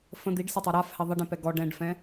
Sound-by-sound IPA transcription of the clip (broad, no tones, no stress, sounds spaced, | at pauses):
f ə̃ d̪ i ɖ s ə tˤ a ɾ a f h ɛ ðˤ ə ɖ ẽ p ɛ ɡ ɔ ɖ ɛ̃ ɖ f ɛ̃